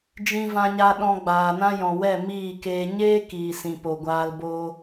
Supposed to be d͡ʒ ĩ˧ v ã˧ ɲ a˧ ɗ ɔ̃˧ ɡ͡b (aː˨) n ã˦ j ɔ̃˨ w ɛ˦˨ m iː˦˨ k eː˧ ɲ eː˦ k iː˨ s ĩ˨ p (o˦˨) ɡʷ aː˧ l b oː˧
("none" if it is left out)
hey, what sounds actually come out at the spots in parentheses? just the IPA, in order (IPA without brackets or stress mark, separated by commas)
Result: aː˨, o˨